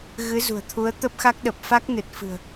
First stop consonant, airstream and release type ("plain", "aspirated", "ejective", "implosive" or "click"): aspirated